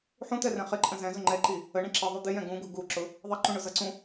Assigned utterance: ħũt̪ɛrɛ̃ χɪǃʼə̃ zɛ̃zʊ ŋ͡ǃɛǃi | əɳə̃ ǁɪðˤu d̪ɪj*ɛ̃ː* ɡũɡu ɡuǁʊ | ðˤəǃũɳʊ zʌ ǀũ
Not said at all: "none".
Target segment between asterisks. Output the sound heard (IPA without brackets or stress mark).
ɛ̃